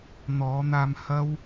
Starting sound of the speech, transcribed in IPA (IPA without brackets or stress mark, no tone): n̪